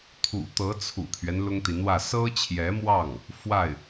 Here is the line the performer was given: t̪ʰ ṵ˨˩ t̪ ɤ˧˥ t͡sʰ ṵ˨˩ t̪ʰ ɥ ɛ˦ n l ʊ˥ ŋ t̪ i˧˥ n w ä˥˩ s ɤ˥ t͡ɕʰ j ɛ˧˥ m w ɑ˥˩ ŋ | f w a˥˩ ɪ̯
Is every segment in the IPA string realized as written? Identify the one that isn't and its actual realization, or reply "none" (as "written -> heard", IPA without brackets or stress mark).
none